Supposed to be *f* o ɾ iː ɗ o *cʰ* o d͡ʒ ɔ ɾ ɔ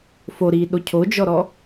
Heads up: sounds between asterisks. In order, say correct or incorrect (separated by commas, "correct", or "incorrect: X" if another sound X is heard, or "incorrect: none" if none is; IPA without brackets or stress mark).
correct, correct